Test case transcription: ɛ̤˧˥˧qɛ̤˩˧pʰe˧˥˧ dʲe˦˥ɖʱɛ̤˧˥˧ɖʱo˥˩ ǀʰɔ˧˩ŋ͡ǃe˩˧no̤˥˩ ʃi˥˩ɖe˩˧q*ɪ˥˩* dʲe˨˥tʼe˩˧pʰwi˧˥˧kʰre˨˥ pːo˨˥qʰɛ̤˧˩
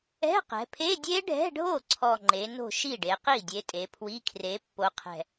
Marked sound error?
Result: yes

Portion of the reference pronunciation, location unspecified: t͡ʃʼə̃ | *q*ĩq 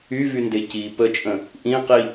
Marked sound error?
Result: yes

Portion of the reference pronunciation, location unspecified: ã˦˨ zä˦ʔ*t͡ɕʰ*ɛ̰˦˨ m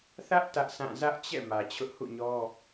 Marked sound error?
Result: yes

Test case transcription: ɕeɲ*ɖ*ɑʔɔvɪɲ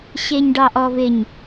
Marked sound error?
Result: no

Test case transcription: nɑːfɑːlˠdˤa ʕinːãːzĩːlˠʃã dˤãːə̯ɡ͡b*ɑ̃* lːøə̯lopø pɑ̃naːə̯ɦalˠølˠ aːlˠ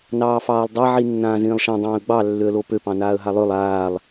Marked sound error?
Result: yes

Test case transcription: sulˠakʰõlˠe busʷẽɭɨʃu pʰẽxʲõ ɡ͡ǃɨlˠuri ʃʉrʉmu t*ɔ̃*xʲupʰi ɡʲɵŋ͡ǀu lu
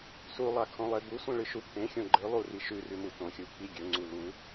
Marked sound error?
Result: yes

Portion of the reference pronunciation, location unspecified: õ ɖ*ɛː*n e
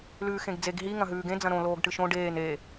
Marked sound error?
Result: yes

